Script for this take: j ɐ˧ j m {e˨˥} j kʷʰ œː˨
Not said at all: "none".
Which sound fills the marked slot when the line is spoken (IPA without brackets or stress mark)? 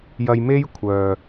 e˥